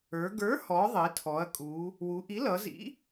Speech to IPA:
ə˞˩˧ ɡ ə˞˨˥ h ɔ˩˧ ðˤ i˩˧ tʰ ɔ˩˧ ɐ̯ kʼ u˩˧ | w u˩˧ ʔ i˨˥ l ʌ˩˧ z ḭ˨˥

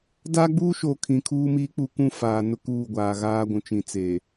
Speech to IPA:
d aː˦ ɡ͡b uː˦ ʃ oː˨ kʰ ĩ˨ kʰ uː˦ m iː˦ k͡p u˦˨ k ũ˦˨ f aː˨ n ʊ˦ k uː˦˨ ɡʷ aː˨ ɣ aː˦ ɡʷ ũ˨ t͡ʃ ĩ˨ t͡s eː˨

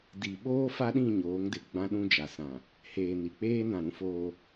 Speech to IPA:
d i˨ ɓ oː˦ f a˦ ɗ ĩ˦˨ ɲ oː˨˦ ŋ d ɪ˨ ɡ͡b ã˦ ɗ ũ˦ d͡ʒ a˨ s ã˨ | h eː˨ n i˨ k͡p eː˦ n ã˦˨ ɾ ũ˦ f oː˦

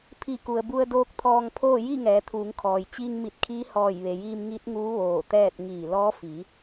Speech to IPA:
pʰ i˧˩ k u˩ ə̯ b u˧ ə̯ d oː˧˥ k̚ t̪ʰ ɔː˧ ŋ pʰ oː˥˨ j i˥˨ ŋ ɛː˩˧ t̪ʰ uː˩˧ ŋ kʰ ɔː˩ j t͡ɕ iː˧ ŋ m i˧˩ t̚ kʰ iː˧˥ h ɔː˧˩ j ʋ e˩ j iː˧ m ŋ i˧˥ t̚ ŋ uː˧˥ ʋ oː˧˩ t̪ ɛː˥˨ t̚ ŋ iː˧˩ l ɔː˧˥ f i˩˧

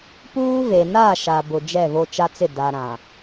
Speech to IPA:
p uː˦ v e˨ n a˦˨ ʃ a˨ b ʊ˨ d͡ʒ ɛ˦˨ v o˦ t͡ʃ a˦ t͡s ɪ˦˨ d a˨ ɾ ã˨

